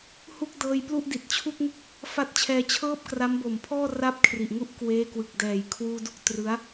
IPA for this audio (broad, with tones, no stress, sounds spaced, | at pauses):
h u˥˩ k̚ d ɤː˧ j p l u˥˩ ʔ d i˨˩ t̚ t͡ɕʰ u˥˩ k̚ ŋ ɯ˥˩ k̚ | f a˥˩ t̚ t͡ɕʰ ɛː˧ t͡ɕʰ ɤː˥˩ p̚ k r a˦˥ m b o˨˩ m pʰ ɔː˥˩ r a˥˩ p̚ kʰ r i˨˩ ʔ ŋ u˥˩ ʔ k w eː˦˥ k w ɯ˨˩ k̚ d ɛː˩˦ j kʰ w uː˧ d u˥˩ k̚ t r ɯ˦˥ a̯